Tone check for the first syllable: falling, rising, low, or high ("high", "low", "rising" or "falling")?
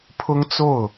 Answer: high